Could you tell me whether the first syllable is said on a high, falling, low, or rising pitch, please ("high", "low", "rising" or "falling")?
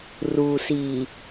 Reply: low